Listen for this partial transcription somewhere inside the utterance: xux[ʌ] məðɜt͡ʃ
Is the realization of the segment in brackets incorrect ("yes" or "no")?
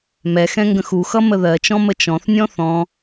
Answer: no